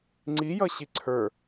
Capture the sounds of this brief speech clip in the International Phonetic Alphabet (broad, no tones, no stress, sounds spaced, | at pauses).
ŋ͡ǀ i j ʌ ɕ i ǀʰ ə˞